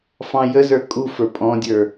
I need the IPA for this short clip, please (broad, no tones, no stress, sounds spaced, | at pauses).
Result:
f ɑ̃ j ə z ə˞ kʼ u f ə˞ pʼ ɔ̃ dʲ ə˞